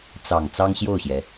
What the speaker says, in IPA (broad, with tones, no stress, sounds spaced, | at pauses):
t͡s ɑ˨˩ ŋ t͡s ɑ˥ ŋ ɕ j o˥˩ ʊ̯ ɕ j ɛ˩